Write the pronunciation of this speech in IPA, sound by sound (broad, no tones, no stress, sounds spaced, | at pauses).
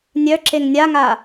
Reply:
nʲ œ ǁ e ŋ nʲ a ŋ a